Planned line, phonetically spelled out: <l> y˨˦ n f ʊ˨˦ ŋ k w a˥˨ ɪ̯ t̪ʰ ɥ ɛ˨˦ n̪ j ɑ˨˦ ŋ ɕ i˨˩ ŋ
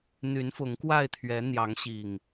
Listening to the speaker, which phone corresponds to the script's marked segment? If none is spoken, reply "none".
n̪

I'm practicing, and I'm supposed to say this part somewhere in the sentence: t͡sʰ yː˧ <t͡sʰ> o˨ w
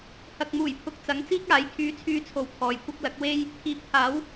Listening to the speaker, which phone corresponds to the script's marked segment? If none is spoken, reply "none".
t͡sʰ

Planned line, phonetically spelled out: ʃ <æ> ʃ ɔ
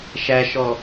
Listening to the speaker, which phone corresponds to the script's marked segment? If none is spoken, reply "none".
æ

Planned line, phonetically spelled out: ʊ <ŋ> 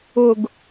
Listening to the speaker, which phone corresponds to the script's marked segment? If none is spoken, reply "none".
ɡ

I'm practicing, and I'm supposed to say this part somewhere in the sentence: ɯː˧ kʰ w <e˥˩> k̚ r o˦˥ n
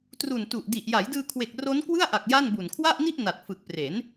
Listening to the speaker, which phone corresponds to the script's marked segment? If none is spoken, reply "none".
e˨˩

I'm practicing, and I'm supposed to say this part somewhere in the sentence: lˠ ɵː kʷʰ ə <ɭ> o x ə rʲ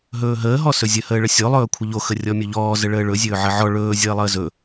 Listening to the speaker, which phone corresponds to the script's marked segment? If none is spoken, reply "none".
ʎ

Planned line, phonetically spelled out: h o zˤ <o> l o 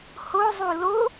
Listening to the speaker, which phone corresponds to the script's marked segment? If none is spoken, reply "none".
u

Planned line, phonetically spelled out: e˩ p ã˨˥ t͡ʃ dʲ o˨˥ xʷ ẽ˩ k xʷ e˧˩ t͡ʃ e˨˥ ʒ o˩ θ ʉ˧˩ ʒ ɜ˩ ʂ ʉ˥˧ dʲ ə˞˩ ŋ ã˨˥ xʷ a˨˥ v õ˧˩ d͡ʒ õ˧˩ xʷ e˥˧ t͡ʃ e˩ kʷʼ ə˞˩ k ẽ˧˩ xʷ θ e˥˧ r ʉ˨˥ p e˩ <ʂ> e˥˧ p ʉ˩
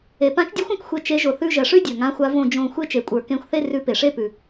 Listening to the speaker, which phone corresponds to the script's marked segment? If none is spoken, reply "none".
ʂ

